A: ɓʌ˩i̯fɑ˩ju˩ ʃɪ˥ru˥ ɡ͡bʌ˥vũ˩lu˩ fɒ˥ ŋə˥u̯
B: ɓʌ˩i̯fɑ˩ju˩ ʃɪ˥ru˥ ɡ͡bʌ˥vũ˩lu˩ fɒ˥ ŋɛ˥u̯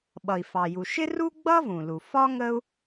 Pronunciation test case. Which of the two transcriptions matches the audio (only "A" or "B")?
A